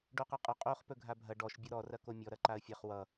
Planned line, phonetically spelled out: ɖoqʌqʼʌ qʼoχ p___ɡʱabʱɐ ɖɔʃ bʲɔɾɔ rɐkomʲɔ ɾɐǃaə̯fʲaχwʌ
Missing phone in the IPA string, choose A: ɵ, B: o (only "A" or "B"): A